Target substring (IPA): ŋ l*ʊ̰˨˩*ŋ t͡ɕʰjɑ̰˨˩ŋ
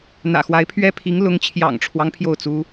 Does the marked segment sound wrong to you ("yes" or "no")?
yes